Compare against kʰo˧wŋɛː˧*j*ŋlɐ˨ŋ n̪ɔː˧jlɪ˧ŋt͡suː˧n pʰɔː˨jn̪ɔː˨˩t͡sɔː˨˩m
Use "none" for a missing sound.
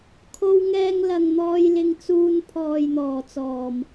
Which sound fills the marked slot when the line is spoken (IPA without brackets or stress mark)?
none